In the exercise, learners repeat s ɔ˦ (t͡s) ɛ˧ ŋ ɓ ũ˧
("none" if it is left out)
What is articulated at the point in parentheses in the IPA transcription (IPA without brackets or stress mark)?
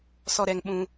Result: ɾ